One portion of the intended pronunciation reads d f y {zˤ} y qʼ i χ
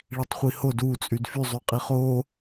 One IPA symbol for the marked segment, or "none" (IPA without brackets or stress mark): zˤ